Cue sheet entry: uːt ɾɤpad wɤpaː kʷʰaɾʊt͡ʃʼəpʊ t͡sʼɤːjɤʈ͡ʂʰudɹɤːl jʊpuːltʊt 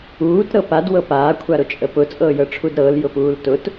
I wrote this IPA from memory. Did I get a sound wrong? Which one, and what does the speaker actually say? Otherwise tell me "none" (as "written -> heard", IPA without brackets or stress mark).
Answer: ɹ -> ɾ